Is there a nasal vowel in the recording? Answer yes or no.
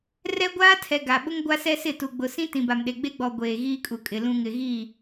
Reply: yes